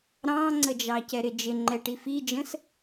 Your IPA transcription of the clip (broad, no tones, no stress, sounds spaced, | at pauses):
ɾ ɑ̃ ŋ͡ǀ ə d͡ʒ ɑ c ɛ ɾ ɪ d͡ʒ ɪ ŋ͡ǃ ɛ ʈ i f i d͡ʒ ə̃ s